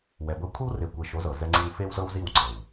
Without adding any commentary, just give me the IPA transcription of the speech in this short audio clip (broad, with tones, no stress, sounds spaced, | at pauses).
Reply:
w ɛ˨ b ɤ˦ kʷʰ i˦ w r e˨ kʷ e˨ ʃ o˨˦ z ɤ˨ z ɛ˦ ŋ͡ǀ i˦ w f e˦ w z ɤ˦ w z i˦˨ w ǀ ɤ˨ w